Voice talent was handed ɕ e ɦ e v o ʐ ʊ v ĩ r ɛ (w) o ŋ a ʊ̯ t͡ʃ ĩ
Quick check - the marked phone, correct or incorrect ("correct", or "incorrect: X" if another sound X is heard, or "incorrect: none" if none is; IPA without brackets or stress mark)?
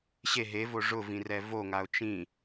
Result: incorrect: v